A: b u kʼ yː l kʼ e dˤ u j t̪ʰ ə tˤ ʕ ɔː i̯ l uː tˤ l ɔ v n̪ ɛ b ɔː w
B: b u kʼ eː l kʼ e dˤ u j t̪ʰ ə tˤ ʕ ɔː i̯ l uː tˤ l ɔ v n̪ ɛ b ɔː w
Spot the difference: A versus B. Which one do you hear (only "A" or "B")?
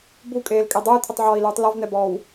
B